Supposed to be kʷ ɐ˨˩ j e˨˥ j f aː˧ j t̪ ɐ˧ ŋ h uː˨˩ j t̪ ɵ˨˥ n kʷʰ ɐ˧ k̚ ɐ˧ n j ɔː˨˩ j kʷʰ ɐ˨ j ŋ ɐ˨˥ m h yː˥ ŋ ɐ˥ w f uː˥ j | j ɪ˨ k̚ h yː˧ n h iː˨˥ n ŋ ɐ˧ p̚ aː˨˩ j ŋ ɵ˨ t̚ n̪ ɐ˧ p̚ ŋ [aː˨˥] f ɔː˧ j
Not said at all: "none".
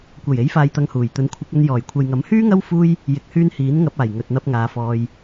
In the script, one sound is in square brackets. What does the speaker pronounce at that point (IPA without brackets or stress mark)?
aː˨˧